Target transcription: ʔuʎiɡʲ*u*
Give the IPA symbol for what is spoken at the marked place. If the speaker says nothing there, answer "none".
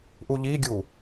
u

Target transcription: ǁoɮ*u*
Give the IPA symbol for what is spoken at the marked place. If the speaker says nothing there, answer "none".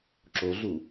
u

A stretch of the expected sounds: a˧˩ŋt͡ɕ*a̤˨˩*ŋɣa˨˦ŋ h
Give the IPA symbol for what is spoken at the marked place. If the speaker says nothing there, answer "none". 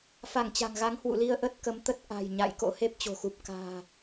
a̤˨˩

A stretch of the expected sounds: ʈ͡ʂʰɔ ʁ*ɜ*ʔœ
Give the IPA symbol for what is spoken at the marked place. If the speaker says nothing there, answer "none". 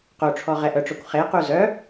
ɛ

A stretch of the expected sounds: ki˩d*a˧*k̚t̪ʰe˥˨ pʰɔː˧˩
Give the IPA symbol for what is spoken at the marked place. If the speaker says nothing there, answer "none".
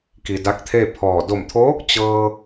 a˧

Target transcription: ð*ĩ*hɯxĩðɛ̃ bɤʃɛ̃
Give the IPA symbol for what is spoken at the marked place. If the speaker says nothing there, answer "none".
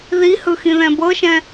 i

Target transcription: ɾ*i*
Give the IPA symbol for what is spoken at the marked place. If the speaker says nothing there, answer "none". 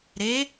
e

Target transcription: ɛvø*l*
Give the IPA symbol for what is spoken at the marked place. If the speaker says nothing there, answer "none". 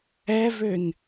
n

